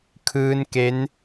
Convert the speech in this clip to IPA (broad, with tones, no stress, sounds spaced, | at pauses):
kʰ ɯː˦˥ n k e˦˥ n